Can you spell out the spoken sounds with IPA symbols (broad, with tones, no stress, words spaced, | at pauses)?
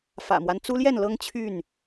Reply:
fä̰˨˩mwa˦n t͡su˦ljɛ˥˨nlɤ˦ŋ t͡ɕʰy˥˨n